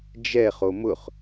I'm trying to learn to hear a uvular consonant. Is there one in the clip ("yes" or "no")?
yes